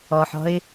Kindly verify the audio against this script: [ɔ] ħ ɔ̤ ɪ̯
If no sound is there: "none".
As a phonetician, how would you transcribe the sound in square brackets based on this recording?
ɔ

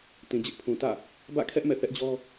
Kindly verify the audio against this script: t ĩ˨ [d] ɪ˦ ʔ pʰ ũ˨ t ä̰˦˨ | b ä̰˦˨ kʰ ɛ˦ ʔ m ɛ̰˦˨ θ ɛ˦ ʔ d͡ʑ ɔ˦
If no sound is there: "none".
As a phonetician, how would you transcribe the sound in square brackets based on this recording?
d͡ʑ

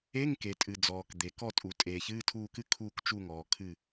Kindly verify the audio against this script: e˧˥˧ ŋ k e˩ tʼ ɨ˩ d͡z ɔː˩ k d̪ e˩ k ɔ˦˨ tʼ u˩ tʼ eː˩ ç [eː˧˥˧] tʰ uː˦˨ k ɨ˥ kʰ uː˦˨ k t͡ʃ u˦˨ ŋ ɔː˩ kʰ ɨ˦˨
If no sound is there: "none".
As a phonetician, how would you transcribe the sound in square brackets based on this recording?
ɨː˧˥˧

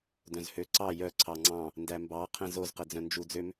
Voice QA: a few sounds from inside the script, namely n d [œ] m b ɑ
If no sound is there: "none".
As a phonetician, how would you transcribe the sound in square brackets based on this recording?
æ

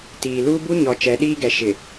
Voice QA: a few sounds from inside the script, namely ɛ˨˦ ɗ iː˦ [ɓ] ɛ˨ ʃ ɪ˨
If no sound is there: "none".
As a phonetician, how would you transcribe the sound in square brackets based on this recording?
ɡ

